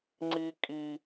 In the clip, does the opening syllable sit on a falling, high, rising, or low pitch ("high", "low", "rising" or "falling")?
high